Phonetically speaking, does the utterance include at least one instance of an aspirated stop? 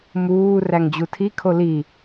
yes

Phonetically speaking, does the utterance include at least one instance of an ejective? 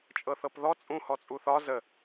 yes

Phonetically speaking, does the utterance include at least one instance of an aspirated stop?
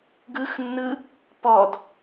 no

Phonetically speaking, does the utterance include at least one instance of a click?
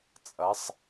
no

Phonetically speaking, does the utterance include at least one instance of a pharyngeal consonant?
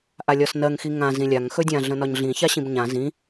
no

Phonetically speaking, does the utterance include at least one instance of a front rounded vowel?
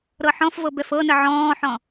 no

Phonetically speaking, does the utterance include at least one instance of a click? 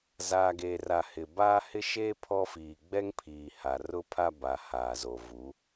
no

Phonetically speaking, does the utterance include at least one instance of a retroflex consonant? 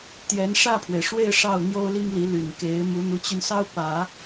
yes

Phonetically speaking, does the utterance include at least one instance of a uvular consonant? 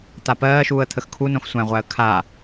yes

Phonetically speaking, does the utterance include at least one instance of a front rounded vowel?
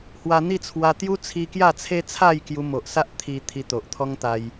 no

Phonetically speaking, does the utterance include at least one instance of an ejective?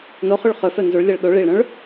no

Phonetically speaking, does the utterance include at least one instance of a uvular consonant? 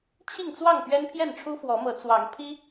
no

